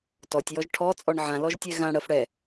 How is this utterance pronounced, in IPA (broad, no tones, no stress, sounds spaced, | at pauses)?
t ɔ tʲ j ɔ ʒ ʈʰ ɔ t͡sʼ ɔ ɳ ʕ ã l ɔ ʒ tʲ ɛ ɣ ã ɽ ɜ f ɽ ɛ